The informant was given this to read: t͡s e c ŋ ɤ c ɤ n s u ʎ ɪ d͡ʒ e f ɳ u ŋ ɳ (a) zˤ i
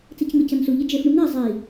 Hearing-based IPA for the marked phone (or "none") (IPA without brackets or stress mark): a